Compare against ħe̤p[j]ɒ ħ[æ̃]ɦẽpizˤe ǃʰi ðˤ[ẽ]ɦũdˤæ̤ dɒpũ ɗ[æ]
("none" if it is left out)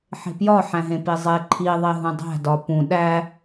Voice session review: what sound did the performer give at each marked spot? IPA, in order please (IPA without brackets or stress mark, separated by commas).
j, æ̃, e, æ